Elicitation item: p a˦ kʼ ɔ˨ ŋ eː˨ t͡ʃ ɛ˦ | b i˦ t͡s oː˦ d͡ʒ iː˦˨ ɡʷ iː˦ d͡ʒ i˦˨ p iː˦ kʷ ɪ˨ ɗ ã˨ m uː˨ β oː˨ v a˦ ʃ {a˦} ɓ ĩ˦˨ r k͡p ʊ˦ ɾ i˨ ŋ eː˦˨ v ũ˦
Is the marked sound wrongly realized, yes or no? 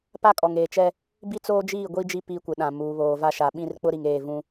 yes